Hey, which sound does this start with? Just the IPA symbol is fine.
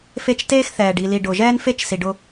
f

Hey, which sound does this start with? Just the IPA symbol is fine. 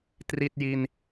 t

